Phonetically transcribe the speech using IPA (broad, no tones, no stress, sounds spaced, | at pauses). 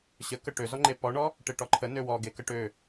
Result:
ɕ ə k ə ʈ ø z ɔ ŋ͡ǃ e p ɔ ɳ ɔ | ʈ e ʈ ɔ ǃʰ ə n ø w ɔ ɡ e k ə ʈ ø